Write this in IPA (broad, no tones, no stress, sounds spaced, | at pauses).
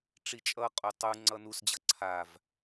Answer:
ʈ͡ʂ i t͡ʃʼ ʌ qʼ u tˤ u ŋ͡ǀ ʌ n u s d͡ʑ ʌ ǀʰ a v